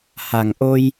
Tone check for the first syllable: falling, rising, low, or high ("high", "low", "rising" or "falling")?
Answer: low